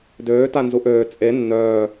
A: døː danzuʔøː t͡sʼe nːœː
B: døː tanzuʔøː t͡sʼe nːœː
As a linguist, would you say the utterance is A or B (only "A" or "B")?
B